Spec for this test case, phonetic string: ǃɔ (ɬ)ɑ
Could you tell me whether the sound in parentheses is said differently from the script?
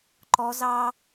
yes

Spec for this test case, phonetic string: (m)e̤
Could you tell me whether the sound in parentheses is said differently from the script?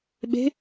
yes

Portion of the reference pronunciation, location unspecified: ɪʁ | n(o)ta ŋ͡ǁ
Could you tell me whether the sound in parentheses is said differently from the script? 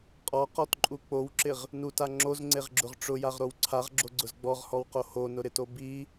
yes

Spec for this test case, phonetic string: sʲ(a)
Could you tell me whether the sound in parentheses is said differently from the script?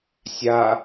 no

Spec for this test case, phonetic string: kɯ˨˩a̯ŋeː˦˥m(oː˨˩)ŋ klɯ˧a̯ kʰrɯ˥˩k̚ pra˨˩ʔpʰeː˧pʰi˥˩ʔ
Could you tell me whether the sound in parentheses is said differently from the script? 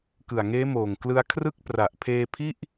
no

